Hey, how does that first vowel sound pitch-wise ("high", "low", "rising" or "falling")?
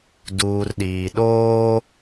low